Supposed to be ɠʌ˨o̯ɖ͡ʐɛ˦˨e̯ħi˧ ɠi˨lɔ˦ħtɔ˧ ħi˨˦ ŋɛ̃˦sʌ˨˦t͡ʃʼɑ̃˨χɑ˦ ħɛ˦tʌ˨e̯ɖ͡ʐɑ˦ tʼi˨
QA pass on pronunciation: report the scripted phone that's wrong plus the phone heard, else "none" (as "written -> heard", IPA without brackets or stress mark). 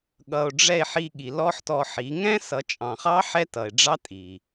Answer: none